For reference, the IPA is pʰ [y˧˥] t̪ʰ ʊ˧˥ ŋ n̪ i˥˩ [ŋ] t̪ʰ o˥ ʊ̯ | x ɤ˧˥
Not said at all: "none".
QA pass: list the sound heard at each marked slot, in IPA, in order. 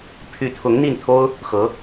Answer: y˧˥, n

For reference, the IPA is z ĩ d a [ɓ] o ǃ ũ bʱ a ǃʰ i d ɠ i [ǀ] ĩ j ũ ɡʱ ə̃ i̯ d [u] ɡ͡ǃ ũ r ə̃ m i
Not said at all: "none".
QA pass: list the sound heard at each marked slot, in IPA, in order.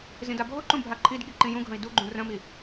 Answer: bʱ, ǃ, u

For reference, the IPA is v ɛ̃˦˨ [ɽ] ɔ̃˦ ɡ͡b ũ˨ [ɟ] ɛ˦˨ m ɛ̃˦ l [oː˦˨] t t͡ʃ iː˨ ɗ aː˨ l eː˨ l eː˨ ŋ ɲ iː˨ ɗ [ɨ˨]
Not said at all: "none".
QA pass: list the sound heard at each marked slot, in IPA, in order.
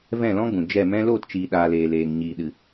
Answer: l, d͡ʒ, oː˦˨, ɨ˨

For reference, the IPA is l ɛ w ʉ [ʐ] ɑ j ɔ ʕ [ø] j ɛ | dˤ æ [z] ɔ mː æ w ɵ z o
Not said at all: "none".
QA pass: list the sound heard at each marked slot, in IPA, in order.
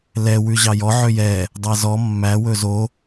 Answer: ʑ, ø, z

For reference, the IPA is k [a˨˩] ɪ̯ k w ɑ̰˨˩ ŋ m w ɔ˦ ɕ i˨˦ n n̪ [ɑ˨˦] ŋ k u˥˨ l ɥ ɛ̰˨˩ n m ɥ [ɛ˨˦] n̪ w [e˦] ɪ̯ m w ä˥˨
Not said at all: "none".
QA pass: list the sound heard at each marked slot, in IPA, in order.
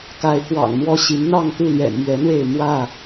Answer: a˨˦, ɑ˥˨, ɛ˨˦, e˥˨

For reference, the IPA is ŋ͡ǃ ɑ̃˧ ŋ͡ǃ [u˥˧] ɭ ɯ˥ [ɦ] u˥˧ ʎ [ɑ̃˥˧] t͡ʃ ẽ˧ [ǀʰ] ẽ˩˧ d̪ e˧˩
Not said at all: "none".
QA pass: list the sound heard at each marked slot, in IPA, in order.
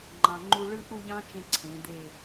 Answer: u˥, ʔ, ɑ̃˥, ǀʰ

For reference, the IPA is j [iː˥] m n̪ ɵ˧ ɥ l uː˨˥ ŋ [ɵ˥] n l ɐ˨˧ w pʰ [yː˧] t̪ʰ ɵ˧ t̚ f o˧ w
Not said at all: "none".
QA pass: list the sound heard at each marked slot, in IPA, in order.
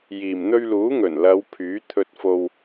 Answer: iː˨˩, ɵ˨˩, yː˨˥

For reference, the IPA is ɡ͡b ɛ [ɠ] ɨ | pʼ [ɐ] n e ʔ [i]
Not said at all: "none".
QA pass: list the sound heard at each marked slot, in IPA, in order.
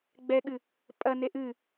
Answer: ɠ, ɐ, ɨ

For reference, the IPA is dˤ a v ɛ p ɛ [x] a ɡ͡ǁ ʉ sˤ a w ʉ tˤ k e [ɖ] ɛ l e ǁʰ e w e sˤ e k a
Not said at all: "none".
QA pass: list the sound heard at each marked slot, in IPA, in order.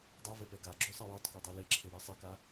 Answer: ɡ, dˤ

